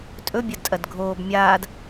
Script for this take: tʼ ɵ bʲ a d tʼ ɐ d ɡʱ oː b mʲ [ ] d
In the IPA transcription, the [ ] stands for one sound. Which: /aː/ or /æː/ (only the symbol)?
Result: aː